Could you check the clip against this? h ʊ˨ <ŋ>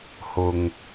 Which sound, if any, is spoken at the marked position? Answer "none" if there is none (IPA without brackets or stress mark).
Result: ŋ